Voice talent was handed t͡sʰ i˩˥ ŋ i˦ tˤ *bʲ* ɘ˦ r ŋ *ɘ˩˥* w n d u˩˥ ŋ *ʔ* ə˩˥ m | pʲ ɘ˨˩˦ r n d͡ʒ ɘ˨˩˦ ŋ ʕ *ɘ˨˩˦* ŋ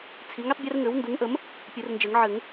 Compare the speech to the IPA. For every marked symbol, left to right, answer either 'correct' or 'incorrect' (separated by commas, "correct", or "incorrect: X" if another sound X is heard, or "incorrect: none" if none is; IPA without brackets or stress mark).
correct, correct, correct, correct